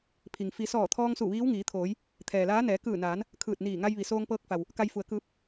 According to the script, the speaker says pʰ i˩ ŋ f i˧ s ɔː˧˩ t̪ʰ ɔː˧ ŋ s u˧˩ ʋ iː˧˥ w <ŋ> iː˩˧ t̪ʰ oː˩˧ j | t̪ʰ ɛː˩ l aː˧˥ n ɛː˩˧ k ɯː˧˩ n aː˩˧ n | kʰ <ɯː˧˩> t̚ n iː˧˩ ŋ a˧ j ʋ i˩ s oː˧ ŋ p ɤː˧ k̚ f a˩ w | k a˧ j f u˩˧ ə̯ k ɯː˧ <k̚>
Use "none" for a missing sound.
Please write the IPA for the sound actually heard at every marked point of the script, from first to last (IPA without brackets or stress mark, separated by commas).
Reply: ŋ, ɯː˧˩, p̚